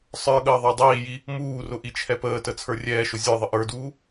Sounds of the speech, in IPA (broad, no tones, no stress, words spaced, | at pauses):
sˤə˞ɠəː ðˤə˞dˤiːji | muːrʊ ʔit͡ʃʰɛpəːtə t͡sʰə˞rʲɛːʃʊ zʲə˞ðˤə ʔə˞duː